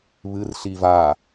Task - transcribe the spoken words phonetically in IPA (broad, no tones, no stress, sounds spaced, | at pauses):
β ɨ r ɬ i v a